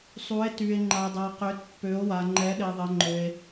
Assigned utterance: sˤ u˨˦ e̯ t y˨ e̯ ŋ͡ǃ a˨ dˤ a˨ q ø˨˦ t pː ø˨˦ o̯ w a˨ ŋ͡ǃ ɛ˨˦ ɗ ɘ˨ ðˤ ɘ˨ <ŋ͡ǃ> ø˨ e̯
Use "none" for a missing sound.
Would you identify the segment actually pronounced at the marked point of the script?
ŋ͡ǃ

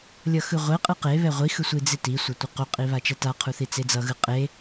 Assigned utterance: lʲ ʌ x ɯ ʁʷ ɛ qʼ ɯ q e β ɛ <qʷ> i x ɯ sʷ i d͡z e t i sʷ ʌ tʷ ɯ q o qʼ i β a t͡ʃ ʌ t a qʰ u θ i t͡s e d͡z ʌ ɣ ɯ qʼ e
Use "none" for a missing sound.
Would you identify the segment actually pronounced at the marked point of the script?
ʁʷ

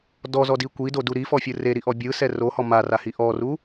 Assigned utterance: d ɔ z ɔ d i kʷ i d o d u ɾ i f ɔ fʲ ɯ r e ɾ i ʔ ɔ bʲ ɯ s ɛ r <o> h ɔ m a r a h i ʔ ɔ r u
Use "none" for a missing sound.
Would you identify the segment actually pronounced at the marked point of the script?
o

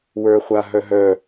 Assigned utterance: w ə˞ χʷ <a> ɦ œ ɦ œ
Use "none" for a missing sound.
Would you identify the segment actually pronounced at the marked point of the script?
a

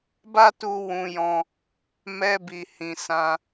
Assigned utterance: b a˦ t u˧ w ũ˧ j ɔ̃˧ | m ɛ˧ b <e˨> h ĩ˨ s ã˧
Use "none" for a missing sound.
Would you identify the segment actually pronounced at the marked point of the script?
i˨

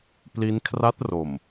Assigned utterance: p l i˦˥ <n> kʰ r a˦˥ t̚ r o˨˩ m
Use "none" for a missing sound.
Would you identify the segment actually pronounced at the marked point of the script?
n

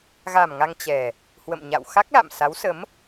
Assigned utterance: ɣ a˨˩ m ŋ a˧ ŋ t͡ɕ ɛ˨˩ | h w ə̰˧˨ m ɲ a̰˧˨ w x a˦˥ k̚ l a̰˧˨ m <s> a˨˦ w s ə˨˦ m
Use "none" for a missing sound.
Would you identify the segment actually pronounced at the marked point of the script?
s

